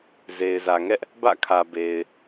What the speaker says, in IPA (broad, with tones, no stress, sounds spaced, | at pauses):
z e˨ ɪ̯ z ä˨ ŋ ɛ˦ ʔ | b ä̰˦˨ kʰ ä˨ b e˨ ɪ̯